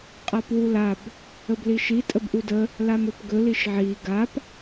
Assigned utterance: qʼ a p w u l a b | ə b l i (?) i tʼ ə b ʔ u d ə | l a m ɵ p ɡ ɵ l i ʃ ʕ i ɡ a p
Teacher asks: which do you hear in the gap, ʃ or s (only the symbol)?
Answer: ʃ